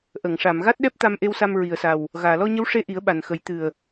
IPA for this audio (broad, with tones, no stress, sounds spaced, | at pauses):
ʔ ə˨˩˨ ŋ ʂ a˨˩˨ m ɣ a˦˥ t̚ ɗ ɛ˦˥ p̚ t̪ a˧ m ʔ e˧ w s a˧ m ɹ i˨˩ ə̯ s a˨˩ w | ɣ aː˨˩˨ l ɔ˧ ɲ ə˧˥ w ʂ e˧˥ ʔ i˨˩˦ ə̯ ɓ a˨˩ n x ə˨˩˦ j t̪ ɨ˨˩ ə̯